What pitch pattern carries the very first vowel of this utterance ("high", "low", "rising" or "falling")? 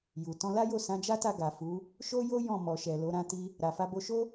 low